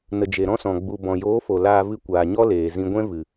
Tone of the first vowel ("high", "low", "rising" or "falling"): low